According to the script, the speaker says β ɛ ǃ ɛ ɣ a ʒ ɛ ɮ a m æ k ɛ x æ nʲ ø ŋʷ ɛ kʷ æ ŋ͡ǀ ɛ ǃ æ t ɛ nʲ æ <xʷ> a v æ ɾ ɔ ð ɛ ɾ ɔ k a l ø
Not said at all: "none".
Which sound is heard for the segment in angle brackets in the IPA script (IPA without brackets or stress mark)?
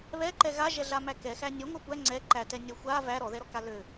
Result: xʷ